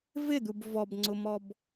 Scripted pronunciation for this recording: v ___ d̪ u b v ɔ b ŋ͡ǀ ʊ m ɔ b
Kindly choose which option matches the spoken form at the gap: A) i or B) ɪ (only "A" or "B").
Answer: B